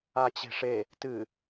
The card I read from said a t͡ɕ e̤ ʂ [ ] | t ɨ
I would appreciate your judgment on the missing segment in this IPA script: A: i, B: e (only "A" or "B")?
B